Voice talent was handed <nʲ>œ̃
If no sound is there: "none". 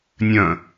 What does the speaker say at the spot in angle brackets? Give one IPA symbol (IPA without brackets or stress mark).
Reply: nʲ